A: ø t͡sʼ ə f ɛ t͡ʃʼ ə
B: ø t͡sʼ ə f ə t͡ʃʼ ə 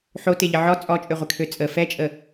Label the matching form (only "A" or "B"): A